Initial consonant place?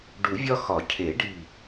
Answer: retroflex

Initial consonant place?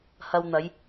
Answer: glottal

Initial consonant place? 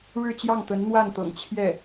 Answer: retroflex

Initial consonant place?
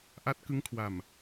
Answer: glottal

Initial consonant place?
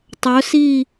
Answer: alveolar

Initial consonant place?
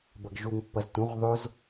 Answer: labial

